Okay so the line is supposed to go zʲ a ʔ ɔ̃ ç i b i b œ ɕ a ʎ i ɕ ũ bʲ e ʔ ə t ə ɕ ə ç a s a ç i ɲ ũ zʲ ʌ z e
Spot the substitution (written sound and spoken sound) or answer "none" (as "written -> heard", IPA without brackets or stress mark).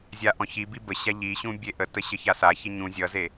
œ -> ə